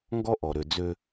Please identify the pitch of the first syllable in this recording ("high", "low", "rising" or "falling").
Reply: high